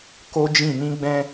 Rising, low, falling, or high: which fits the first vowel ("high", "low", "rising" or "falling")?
high